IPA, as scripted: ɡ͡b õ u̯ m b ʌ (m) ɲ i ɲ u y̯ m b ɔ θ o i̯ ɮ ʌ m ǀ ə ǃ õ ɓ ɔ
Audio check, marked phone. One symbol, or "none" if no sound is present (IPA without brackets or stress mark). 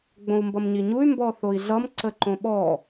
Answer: m